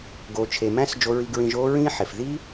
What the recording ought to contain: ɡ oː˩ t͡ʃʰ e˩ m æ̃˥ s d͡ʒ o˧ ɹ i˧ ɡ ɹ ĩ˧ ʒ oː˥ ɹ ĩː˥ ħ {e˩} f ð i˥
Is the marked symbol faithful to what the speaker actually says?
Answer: yes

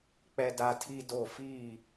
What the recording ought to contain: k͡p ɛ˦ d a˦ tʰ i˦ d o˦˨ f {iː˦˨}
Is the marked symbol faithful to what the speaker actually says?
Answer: yes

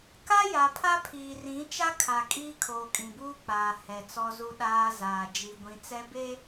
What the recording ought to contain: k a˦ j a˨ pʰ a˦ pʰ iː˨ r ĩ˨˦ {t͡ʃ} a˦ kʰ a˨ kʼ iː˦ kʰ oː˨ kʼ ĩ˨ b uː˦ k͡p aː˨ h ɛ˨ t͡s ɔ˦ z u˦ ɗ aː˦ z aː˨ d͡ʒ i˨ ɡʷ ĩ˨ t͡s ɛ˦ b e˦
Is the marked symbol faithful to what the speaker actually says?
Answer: yes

